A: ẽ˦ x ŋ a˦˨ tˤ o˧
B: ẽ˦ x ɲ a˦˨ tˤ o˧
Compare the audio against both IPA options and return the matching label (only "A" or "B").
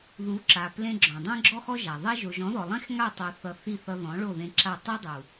A